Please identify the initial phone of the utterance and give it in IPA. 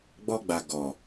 ɡ͡b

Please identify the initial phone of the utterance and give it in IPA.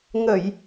ŋ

